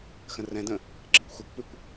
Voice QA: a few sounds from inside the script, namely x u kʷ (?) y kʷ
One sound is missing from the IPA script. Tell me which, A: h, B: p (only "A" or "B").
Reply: B